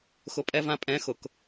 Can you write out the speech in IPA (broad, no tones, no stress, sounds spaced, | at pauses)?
x ʊ pʼ ɛ v ã pʼ ɛ̃ x ʊ k